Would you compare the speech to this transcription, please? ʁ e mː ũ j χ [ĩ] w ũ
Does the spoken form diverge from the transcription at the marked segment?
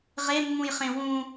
yes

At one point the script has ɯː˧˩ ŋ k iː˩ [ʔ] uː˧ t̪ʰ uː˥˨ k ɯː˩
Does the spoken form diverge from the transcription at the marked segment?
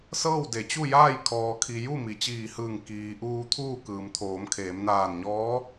no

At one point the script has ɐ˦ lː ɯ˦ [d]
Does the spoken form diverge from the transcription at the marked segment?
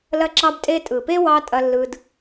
no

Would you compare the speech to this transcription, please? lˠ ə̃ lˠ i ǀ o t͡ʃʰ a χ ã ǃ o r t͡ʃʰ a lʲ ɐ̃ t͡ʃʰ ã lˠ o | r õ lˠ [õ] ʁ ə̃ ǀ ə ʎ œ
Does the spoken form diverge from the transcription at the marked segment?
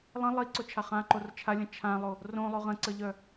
yes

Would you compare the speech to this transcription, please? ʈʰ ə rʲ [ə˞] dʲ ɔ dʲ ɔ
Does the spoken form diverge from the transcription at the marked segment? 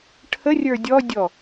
no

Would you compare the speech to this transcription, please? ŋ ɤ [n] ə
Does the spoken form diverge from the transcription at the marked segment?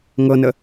no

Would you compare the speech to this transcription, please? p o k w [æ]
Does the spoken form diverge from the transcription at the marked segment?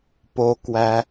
no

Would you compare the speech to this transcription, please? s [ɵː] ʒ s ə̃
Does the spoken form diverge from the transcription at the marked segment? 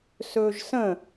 no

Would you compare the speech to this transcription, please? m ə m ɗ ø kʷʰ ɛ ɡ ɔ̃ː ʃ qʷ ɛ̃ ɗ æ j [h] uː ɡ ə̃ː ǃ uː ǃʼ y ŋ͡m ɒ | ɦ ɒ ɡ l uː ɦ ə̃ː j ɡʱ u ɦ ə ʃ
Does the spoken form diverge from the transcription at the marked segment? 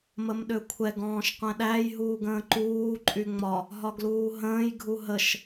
yes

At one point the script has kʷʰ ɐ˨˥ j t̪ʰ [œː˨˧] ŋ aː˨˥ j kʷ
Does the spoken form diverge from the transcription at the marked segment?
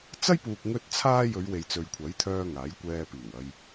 yes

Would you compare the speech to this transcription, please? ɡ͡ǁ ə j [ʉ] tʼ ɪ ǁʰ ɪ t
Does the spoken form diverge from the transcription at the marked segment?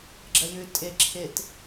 no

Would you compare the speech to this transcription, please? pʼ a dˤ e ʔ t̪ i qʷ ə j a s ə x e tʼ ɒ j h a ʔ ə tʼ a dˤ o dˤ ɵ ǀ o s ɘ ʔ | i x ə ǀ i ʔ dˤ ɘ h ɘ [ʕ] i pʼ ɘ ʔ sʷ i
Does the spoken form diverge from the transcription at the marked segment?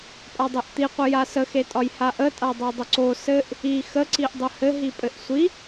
yes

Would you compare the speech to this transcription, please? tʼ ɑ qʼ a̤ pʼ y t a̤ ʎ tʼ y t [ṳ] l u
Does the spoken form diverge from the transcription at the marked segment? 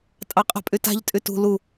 no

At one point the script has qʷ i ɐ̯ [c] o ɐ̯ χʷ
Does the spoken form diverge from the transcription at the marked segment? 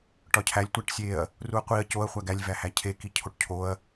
no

